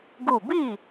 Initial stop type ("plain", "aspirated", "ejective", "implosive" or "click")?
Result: plain